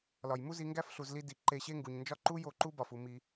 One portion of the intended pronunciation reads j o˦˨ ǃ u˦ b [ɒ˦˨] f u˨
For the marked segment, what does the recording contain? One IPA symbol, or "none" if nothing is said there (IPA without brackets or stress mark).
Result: ɒ˨